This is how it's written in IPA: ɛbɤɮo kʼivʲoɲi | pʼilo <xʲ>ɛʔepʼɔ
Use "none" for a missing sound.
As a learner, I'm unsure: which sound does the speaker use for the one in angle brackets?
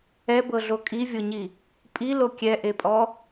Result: kʲ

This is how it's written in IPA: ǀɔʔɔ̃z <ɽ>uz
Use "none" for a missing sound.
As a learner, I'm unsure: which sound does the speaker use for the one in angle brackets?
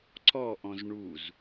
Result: ɳ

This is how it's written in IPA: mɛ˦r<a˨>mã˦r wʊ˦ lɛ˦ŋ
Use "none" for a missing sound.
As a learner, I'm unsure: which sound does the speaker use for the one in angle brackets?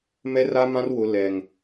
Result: a˦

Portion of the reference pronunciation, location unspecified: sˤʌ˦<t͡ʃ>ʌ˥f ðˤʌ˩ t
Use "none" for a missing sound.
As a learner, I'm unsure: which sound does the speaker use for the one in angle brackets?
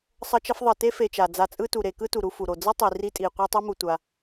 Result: t͡ʃ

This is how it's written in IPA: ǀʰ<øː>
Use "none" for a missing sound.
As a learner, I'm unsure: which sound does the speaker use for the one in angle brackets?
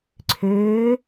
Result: øː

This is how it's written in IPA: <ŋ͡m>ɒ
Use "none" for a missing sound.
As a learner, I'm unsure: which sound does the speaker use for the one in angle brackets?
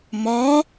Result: m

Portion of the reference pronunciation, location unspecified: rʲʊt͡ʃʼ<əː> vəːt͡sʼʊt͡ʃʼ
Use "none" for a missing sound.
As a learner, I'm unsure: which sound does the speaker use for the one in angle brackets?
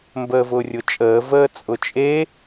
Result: əː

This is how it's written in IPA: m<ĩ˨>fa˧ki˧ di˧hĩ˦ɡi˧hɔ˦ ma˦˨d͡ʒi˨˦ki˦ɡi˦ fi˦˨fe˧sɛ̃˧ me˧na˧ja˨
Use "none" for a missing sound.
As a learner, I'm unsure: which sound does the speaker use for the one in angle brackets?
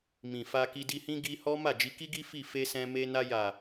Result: ĩ˨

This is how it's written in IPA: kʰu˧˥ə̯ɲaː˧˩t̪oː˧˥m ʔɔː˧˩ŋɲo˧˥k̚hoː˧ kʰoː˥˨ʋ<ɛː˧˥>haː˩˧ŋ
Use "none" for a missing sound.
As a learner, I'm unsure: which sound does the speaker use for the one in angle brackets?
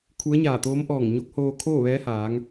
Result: ɛː˧˥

